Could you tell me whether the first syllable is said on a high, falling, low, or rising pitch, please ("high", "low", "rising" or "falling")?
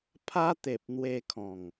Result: high